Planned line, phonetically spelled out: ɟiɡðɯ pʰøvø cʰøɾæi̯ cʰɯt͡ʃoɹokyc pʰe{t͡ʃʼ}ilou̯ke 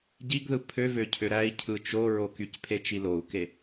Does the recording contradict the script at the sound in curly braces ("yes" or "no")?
yes